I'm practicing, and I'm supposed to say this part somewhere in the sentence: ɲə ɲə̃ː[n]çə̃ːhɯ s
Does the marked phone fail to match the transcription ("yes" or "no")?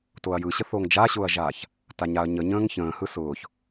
yes